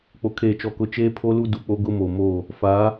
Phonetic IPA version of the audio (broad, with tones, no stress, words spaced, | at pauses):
k͡po˨kʰeː˨t͡ʃɔ˨kʊ˨˦ t͡ʃeː˦pʰo˦ lu˦du˨k͡po˦ɡʊ˦ mo˨mo˦˨ | fa˨˦